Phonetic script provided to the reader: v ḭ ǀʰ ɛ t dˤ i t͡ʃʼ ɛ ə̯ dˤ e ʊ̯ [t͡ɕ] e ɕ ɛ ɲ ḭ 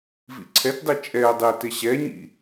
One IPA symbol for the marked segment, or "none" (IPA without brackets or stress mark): t